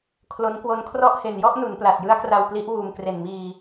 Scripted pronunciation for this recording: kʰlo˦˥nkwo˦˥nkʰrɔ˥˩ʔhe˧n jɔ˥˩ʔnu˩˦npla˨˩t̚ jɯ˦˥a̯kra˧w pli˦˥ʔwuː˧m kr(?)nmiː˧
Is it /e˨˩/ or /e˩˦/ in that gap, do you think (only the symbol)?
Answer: e˨˩